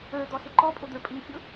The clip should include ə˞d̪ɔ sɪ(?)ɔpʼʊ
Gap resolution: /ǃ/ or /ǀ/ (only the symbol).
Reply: ǃ